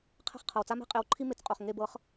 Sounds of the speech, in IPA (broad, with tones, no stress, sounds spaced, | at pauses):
qʰ ɛ̤˥˩ χ qʰ ɤ˩ w t͡s a˥ m e̤˥ qʼ e˩˥ w ǃʰ i˥ m e˩ t͡s qʼ o˩ χ ŋ e˥˩ b ɤ˩˥ χ